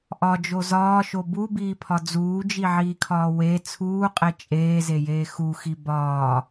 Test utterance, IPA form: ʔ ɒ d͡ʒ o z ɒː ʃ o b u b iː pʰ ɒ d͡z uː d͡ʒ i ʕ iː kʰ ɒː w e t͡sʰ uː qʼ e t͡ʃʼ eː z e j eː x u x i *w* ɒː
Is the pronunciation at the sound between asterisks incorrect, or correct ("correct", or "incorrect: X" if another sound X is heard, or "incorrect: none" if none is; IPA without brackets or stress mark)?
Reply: incorrect: b